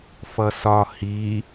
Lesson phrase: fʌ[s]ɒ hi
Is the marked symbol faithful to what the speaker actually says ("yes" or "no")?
yes